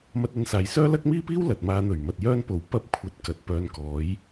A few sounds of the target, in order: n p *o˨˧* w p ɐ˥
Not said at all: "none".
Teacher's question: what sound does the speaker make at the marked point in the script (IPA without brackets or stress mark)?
o˨˥